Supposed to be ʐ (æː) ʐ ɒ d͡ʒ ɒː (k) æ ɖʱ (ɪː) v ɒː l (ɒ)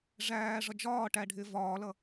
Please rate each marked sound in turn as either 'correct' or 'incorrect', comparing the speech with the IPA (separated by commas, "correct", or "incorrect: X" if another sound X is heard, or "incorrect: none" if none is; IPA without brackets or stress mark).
correct, incorrect: ʈ, correct, incorrect: ʌ